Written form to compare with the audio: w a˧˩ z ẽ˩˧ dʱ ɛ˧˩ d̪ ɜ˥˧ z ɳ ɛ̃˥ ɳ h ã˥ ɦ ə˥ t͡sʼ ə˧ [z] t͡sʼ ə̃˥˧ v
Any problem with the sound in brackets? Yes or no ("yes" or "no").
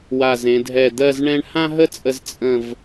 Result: no